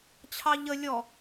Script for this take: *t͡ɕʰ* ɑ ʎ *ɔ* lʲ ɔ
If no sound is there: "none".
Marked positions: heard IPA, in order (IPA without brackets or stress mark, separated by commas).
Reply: t͡ɕʰ, ə